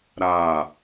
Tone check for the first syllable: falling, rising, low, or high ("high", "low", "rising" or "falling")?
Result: falling